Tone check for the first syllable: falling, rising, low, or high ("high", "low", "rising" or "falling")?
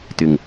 low